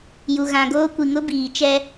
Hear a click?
no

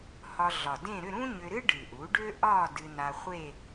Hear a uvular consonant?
yes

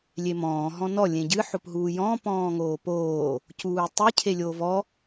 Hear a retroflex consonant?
no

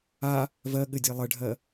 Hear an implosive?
yes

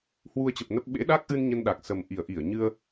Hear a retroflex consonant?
no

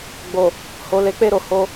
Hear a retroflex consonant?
no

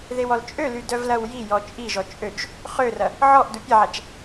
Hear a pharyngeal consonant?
yes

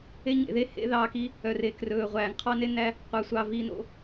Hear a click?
no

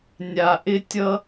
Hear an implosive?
no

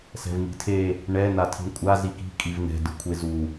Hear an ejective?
yes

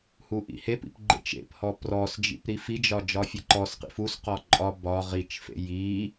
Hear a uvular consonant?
yes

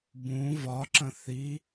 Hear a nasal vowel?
yes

